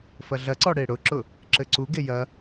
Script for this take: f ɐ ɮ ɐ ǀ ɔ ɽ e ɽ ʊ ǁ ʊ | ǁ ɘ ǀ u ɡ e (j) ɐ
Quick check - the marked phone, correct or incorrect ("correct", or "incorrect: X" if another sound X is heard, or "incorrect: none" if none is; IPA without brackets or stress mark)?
correct